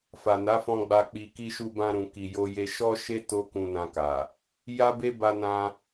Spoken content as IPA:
f a˨ n a˨˦ f ɔ̃˧ ɡ͡b a˧ k͡p i˧ k i˦ ʃ u˧ b ã˧ ɾ ũ˨ k i˨ j o˧ j e˧ ʃ ɔ˦ ʃ e˦ t o˦ k ũ˧ n ã˧ k a˨ | j a˦ b e˦ b a˧ n ã˧

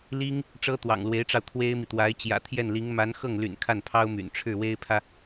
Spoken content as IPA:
l i˥ ŋ | ʈ͡ʂ ɤ˥ t̪ w ɑ̰˨˩ ŋ l w e˧˥ ɪ̯ ʈ͡ʂ ɑ˧ ʊ̯ t̪ʰ w e˥ ɪ̯ m i˨ t̪ w a˧˥ ɪ̯ t͡ɕ j ä̰˨˩ t̪ʰ j ɛ˥˩ n l i˧˥ ŋ m a˧˥ n x ɤ˥˩ ŋ l y̰˨˩ n kʰ a˥˩ n pʰ ɑ˥ ʊ̯ m y̰˨˩ n ʈ͡ʂʰ ɻ̩˥˩ w e˥ ɪ̯ pʰ ä˨

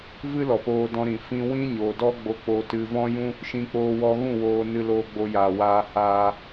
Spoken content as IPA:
v ɨ˦ l ɔ˨ p oː˧ d ɔ̃˧ ɾ ĩ˨ f ĩ˧ w ĩ˦ ɲ o˨ d ɔ˦ ɡ͡b o˧ k͡p o˧ t ɨ˧ v ɔ̃˦ j ũ˦ | ʃ ĩ˧ k͡p oː˧ w ɔ˧ ɣ ũ˦˨ w oː˧ n ɨ˧ l oː˧ ɡ͡b o˧ j aː˨ w aː˧ h aː˧

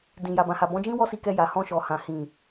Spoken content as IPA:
d ĩ˨ j a˨ b ã˨ h a˨ b ɔ̃˨˦ d͡ʒ ĩ˦ w ɔ˦ s i˧ k ɛ˧ j a˨ h ɔ̃˧ ʃ ɔ˨ h ã˨ h ĩ˨

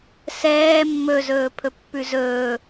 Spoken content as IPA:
s ɛː mː ɵ z ɵː pʰ ɵ pː ʉ z ɵː

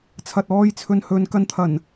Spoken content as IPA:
t͡sʰ ɐ˧ t̚ ɔː˥ j t͡sʰ ɵ˧ n h ɵ˧ n k ɐ˧ n t̪ʰ ɐ˨˩ n

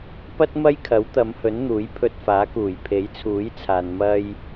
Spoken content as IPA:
p ɐ˥ t̚ m ɐ˥ j kʰ ɐ˨˥ w t̪ ɐ˨˧ m h ɵ˨˥ n n̪ uː˨˥ j pʰ ɵ˧ t̚ f aː˨˥ k uː˨˩ j pʰ e˨˥ j t͡sʰ uː˨˥ j t͡sʰ aː˨ n m ɐ˧ j

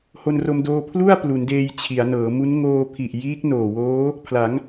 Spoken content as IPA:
h o˧ n r o˧ m d oː˧ pʰ l u˥˩ a̯ p l u˩˦ n d eː˧ j t͡ɕʰ i˩˦ a̯ n ɤː˩˦ m u˦˥ n ŋ oː˧ pʰ i˨˩ ʔ j iː˦˥ k̚ n oː˨˩ w oː˦˥ | pʰ l a˩˦ ŋ

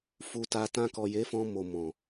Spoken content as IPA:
f u˨ t a˨ t ã˧ k ɔ˨ j e˨˦ f ɔ̃˧ m o˨ m ɔ̃˨

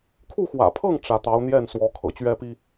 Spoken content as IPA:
kʰ u˥˩ x w ä̰˨˩ pʰ ɤ˥˩ ŋ ʈ͡ʂ ä˥ t̪ ɑ˧˥ ʊ̯ n̪ j ɛ˥˩ n s w ɔ˧˥ kʰ ɤ̰˨˩ t͡ɕ ɥ ɛ˥ p i˥

